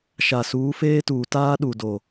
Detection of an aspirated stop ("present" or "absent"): absent